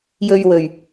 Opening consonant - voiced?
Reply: yes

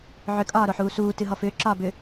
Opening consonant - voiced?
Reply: yes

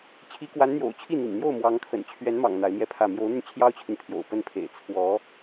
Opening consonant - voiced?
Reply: no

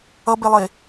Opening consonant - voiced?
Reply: yes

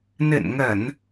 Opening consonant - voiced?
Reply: yes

